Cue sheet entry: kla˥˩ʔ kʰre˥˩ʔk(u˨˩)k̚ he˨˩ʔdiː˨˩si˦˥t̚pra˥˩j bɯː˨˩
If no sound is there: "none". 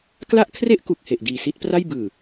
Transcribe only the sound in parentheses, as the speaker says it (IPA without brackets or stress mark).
u˨˩